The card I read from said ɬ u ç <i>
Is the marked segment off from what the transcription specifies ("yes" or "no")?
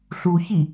no